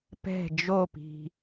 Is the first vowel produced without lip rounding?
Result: yes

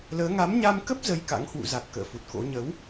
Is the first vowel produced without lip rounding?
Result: yes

